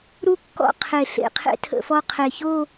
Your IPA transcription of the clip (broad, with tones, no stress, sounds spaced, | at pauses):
ɾ u˥ kː ɔ̰˥˧ qʰ e˧˩ ɬ ḛ˧˩ qʰ ḛ˥ tʰ ə̰˧ f ɔ˥˧ qʰ e˧˩ ç o˥˧